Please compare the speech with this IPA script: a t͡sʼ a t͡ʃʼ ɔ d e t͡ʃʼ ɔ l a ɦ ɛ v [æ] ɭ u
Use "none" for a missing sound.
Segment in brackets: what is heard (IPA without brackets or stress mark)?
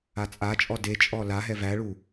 æ